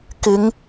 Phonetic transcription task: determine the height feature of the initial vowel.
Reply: high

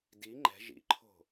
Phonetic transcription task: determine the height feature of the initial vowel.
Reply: high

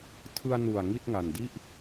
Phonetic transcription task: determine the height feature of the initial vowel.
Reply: high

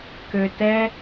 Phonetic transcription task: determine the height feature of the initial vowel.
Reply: mid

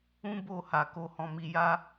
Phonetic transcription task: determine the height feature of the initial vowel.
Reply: high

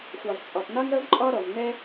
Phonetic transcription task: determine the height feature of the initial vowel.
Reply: low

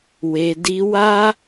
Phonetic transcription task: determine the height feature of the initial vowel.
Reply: mid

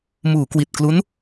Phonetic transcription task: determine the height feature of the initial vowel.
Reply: high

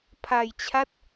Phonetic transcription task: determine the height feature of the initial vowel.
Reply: low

